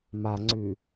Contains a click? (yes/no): yes